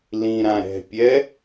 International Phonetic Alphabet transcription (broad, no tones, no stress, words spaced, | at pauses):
lĩɾã ɾɛ̤pʲɛ